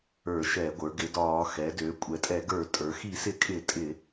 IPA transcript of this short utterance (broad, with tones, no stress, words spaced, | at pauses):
ə˞˧˩˧ʃɛ˧˩˧ɡʷə˞˩˧ ɡɪ˩˧dɒː˧˩˧ xɛ˩˧dø˩˧ kʷʼɛ˩˧tʼɛ˧˩˧ ɡə˞˧˩˧tʼə˞˩˧ xi˧˩˧sɪ˧˩˧kʼɪ˧˩˧ tʼɪ˧˩˧